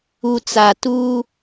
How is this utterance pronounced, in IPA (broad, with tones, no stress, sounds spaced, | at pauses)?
u˨ t͡s a˨ t uː˦